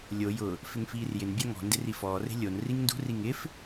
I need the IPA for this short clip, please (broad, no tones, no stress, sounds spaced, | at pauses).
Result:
lʲ o j ʊ | f ɪ ŋ f iː r j ɪ n bʲ a ŋ ɔ̤ n d ɪ r i f ɔː r e̤ lʲ o n r i ŋ n d ṳ r i ŋ ɪ f